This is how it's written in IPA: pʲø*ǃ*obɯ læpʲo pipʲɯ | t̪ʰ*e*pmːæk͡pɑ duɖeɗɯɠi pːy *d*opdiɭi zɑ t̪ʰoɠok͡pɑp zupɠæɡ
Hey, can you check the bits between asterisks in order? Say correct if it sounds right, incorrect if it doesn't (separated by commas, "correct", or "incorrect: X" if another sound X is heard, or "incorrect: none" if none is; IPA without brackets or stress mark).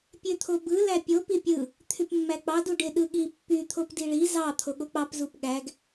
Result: incorrect: t̪ʰ, incorrect: y, incorrect: t̪ʰ